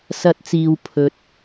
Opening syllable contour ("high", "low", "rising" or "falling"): high